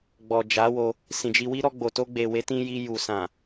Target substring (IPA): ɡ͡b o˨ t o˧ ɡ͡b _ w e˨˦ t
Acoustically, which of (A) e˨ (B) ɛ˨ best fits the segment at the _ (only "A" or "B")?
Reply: A